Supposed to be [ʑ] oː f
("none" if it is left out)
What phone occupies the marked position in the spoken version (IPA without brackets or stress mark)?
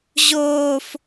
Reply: ʑ